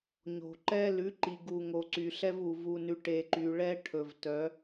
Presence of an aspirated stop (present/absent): present